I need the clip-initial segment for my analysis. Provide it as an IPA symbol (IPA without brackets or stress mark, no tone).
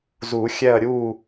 z